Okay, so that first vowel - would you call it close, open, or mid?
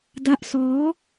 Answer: open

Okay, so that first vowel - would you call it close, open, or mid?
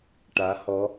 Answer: open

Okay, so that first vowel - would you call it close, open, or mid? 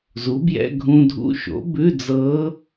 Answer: close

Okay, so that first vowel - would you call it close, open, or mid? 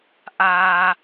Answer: open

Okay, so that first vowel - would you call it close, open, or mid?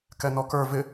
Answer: mid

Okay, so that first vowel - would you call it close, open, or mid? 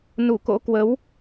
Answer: close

